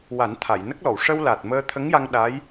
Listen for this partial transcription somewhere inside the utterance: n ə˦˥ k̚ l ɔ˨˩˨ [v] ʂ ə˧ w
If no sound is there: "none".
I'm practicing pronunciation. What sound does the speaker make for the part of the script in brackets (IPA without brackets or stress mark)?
w